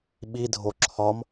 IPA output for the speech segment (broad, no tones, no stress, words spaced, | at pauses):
ɓidʱo ǁʰɒm